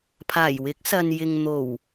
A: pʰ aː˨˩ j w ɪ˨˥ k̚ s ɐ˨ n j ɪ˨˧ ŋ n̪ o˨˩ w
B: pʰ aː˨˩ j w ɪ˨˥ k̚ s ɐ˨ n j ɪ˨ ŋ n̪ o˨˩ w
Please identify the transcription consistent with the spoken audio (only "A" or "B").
B